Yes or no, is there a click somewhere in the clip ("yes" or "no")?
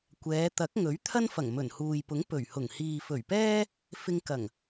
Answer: no